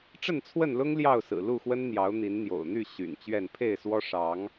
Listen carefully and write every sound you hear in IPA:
ʈ͡ʂ ə˥˨ n t͡sʰ w ə˥˨ n l ʊ˦ ŋ l j ɑ˥˨ ʊ̯ s ɹ̩˨˩ l u˥˨ x w ə˦ n n̪ j ɑ˨˦ ʊ̯ n̪ i˨˦ n n̪ j o̰˨˩ ʊ̯ n̪ y˥˨ ɕ y̰˨˩ n t͡ɕ ɥ ɛ˥˨ n pʰ e˥˨ ɪ̯ s w ɔ˦ ʂ ɑ˨˦ ŋ

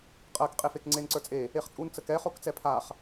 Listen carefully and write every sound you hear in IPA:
qʼ ɜ k qʼ e f e k ŋ͡ǀ e n ǀ ə˞ t͡sʼ e | e χ t͡sʼ u n t͡s ə k ɛ χ o k t͡s ɛ pʰ a χ

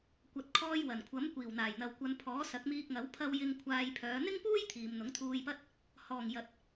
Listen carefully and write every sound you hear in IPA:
kʷ ɐ˨ t̚ kʰ ɔː˧ j w ɐ˨˩ n kʷʰ ɐ˨˥ m kʷ iː˨˩ w n̪ aː˨˩ j n̪ ɐ˨ w kʷ ɐ˨ n pʰ ɔː˨˥ s ɐ˨˥ k̚ m iː˧ k̚ ŋ ɐ˨˥ w pʰ ɐ˧ w j ɪ˧ ŋ kʷʰ aː˧ j pʰ œː˨˧ n̪ ɪ˥ ŋ p uː˥ j t̪ʰ iː˨ m n̪ ʊ˨˥ ŋ t̪ʰ uː˧ j p ɐ˥ t̚ | h ɔː˨˩ ŋ j ɐ˨ t̚

